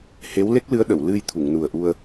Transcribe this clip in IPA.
h e˧˥ w l e˦˥ k̚ l ɨ˧˥ ə̯ ɗ ə˨˩˨ w l ɨ˧ j t̪ʰ u˨˩˨ ŋ n u˨˩ ə̯ ʔ u˧ ə̯

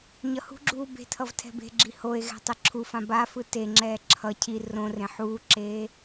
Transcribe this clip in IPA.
ɲ ʌ h ṳ ɡ͡ǁ uː b e̤ tʰ ʌ v tʰ ɛ̤ b e̤ ɡ͡ǁ i h o e̯ ɣ ɛ̤ tˤ e ǁʰ u f ã b a f ɯ t e ŋ͡ǁ ɛː ǁʰ ʌ cʰ i r õ r ẽ ħ uː ǁ eː

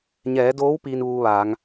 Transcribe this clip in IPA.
ɲ ɛː˩˧ d oː˧˥ w p iː˧ n ʋ uː˧ ʋ aː˩˧ ŋ

